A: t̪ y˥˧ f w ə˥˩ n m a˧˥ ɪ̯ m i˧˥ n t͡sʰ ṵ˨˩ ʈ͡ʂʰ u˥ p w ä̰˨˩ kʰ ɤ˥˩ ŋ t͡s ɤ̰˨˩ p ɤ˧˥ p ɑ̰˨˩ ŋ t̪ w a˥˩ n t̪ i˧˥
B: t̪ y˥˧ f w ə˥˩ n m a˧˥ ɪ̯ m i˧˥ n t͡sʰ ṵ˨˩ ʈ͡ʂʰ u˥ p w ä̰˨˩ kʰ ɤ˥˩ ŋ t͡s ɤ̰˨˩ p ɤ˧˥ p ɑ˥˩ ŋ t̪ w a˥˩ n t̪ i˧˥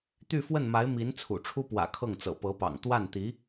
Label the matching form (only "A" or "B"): A